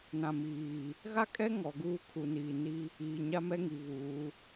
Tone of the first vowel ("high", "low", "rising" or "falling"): low